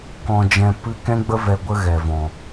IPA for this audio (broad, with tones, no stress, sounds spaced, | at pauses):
k ɔ̃˧ d͡ʒ ɛ̃˧ p ɨ˦ k ɛ̃˦ ɡ͡b ə˦ v ɛ˧ ɡʷ ə˦ ɣ ɛ˨ v ɔ̃˨